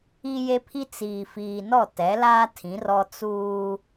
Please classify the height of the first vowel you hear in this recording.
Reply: high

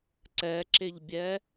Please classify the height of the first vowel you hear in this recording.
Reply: mid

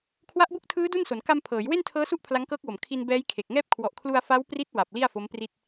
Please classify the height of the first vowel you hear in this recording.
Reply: low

